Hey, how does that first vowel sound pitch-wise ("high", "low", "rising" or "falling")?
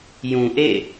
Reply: low